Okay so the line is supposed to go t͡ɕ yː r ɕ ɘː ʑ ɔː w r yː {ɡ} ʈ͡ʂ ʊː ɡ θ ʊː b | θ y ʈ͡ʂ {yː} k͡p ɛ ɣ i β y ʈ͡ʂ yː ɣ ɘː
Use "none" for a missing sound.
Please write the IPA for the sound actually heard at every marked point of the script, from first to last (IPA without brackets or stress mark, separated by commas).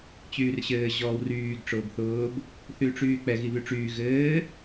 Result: ɡ, yː